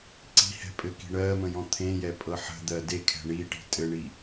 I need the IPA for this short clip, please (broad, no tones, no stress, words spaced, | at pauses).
ǀi̤hɛ̤pʼɘki̤ ɳɜmə̃jɔ̃ t̪ʰẽjɛpʼɤ ħə̤d̪ɜ dekʰɛ̤ ɳiʈi̤ tʼɘɳi